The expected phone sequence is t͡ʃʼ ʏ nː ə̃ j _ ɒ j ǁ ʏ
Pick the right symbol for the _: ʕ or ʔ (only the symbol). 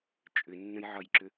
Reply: ʕ